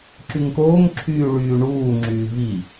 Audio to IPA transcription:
ǁ y ŋ k oː ŋ ǁʰ yː ɭ yː ɳ uː ŋ͡ǁ yː v i

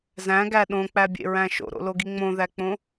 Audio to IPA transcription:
z æ̃ ɡ æ ɗ õ k͡p æ bʲ ḛ ɹ æ̃ ʃ o̰ ɾ o̰ l o ɡ i ŋ͡m õ ð æ k͡p õ

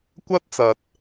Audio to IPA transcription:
kʷ ɐ˥ t̚ t͡s ɐ˨ t̚

